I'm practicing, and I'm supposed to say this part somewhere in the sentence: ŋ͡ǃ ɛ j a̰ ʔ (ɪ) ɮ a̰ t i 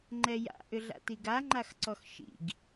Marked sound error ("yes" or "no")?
yes